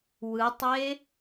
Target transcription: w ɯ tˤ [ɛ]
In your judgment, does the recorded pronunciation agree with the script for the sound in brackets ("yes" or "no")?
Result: no